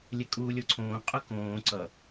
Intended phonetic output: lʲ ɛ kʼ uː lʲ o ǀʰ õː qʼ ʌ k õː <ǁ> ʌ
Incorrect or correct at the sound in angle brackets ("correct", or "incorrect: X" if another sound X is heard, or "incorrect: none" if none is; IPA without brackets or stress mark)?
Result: incorrect: ǀ